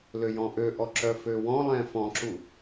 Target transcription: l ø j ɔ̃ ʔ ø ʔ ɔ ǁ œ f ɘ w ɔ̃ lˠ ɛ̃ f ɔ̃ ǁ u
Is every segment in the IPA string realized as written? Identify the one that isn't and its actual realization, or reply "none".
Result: ɘ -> ø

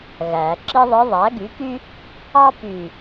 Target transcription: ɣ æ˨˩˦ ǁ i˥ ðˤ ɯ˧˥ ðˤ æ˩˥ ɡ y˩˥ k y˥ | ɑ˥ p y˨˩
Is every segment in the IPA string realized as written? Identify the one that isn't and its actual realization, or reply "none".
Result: none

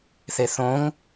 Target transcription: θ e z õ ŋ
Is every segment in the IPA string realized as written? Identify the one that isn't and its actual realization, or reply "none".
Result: z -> θ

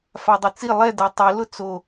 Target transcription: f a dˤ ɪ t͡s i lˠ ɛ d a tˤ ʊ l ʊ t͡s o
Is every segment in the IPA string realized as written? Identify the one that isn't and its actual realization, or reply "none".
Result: none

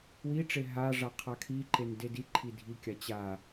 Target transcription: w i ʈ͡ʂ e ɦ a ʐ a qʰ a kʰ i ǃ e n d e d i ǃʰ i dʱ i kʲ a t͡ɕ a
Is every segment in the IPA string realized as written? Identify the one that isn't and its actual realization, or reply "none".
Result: none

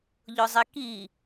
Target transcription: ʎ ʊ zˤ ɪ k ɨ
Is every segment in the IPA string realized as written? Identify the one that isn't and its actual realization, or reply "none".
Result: ɨ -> i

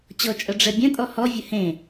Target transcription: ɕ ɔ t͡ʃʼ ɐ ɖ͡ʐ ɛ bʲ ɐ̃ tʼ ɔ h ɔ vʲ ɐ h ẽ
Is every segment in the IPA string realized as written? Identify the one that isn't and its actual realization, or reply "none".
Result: ɕ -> t͡ɕ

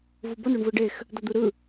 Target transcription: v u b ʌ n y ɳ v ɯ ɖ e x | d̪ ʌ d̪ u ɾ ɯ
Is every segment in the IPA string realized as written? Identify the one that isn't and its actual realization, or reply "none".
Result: y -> u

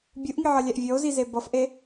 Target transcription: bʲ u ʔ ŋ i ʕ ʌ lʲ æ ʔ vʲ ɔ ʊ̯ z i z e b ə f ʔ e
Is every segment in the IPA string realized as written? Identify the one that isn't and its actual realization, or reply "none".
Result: ə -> ʌ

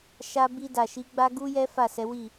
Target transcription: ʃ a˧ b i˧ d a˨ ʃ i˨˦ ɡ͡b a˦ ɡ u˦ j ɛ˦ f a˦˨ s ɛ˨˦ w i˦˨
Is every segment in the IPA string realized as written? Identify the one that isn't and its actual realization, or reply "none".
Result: none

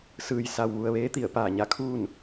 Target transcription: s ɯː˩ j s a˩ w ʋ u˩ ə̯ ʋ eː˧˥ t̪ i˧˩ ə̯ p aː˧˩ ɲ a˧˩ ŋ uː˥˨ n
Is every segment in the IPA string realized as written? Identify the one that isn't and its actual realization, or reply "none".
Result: ŋ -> kʰ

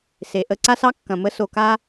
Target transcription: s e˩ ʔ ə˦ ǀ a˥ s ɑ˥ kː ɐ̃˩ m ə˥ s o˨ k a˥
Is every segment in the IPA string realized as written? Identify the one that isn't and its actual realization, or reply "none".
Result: none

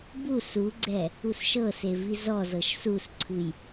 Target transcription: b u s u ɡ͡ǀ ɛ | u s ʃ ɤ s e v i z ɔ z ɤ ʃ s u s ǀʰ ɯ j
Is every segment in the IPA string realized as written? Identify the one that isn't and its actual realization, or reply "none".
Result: none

